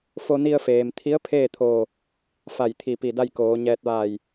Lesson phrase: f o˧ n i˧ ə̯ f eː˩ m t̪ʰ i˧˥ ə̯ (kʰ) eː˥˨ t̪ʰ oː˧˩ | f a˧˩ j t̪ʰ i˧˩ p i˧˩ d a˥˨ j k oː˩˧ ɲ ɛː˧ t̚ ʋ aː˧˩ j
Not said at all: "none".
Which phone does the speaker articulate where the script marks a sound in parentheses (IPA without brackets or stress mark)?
pʰ